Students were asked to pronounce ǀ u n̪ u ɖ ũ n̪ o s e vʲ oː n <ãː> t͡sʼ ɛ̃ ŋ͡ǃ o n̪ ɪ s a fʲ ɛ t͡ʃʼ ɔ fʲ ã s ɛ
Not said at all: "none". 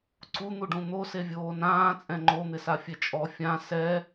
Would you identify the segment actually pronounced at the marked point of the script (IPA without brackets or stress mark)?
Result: ãː